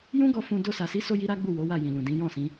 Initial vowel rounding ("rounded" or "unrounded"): rounded